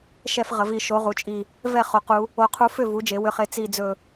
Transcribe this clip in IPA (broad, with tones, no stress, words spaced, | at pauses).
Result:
ʃɛ˥˧f ʁə˧˥vi˧˥ ʃo˧˥ʁu˧˥t͡ʃʼi˥˧ | vɛ˥˧ χo˧˥qu˧˥ | o˧˥qʰu˧˥fʏ˥˧ vu˧˥d͡ʒe˧˥wʏ˧˥χe˥˧ t͡si˥˧d͡zɵ˥˧